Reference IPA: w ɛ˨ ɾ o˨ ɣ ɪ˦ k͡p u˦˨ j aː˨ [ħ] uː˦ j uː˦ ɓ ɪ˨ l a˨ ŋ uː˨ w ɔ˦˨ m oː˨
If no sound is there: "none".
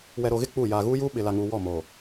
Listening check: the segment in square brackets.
ɣ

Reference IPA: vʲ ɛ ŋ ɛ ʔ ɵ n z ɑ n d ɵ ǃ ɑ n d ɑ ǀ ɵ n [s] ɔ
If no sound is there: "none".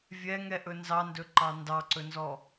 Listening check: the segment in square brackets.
z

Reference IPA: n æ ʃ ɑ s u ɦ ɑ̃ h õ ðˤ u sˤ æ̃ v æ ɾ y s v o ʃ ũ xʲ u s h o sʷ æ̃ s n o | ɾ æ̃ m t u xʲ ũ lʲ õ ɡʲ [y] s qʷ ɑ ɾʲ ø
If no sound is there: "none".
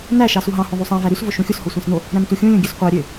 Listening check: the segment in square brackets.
ø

